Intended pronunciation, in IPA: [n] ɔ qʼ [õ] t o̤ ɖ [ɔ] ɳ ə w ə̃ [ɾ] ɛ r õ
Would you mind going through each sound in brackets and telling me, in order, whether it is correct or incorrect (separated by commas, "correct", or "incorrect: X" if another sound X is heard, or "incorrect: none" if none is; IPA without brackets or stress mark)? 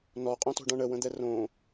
correct, correct, incorrect: ɔ̃, incorrect: d̪